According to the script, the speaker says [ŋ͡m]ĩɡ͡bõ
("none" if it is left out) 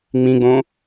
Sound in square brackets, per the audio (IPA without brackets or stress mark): ŋ͡m